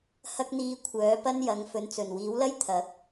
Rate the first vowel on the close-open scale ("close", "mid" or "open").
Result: open